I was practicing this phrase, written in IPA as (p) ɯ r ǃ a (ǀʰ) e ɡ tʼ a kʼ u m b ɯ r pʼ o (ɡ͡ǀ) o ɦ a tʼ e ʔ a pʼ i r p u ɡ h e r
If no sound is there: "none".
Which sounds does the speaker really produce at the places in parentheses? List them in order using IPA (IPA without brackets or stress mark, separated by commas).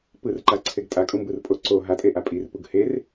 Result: p, ǀʰ, ǀ